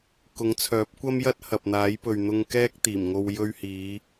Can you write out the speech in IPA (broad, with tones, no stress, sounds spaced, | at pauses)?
k ʊ˨˥ ŋ t͡sʰ œː˨˥ p̚ kʷ ɐ˥ m j ɐ˥ t̚ h ɐ˨ p̚ n̪ aː˨˥ j p ɵ˨ ɥ n̪ ʊ˧ ŋ k ɛː˥ k̚ t̪ iː˨˩ m ŋ o˧ w j ɵ˧ ɥ h iː˨˧